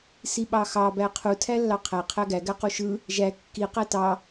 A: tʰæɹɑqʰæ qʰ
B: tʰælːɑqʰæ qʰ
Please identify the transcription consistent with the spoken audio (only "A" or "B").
B